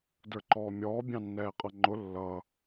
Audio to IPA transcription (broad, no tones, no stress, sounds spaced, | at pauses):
d ə˞ ǃ ɔː mʲ ɔː bʲ ɑ̃ nː ɛː qʼ ʌ ŋ͡ǃ ʊ lː ʌ